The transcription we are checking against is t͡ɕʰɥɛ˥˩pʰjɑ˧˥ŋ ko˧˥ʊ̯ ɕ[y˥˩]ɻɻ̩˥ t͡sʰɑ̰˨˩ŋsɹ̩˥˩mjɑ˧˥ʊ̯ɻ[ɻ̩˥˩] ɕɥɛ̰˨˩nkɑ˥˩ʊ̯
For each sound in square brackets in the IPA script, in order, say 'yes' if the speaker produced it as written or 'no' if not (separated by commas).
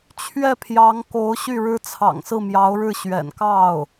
yes, yes